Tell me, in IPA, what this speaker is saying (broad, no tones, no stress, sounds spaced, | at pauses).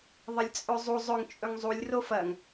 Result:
ðˤ ɐ lʲ t͡sʼ ɵ zˤ u zˤ ɵ ŋ t͡ʃʼ ɵ ŋ zˤ u lʲ r o f ɐ ŋ